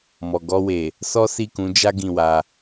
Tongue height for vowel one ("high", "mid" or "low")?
mid